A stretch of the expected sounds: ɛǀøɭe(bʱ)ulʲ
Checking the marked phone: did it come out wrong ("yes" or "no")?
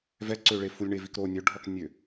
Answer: yes